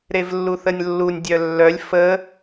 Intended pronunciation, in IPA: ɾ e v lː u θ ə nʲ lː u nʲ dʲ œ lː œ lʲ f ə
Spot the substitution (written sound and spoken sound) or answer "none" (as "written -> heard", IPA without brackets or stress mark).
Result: none